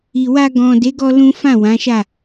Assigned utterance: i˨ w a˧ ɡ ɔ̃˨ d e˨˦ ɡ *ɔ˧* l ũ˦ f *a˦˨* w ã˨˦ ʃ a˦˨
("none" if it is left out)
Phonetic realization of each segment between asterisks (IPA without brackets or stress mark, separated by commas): ɔ˧, ã˦˨